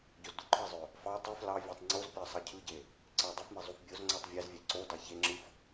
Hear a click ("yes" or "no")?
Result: yes